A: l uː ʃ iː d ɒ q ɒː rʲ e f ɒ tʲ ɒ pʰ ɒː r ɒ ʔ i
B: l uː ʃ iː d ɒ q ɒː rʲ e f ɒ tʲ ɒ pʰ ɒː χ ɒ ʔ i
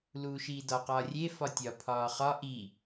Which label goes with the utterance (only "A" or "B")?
B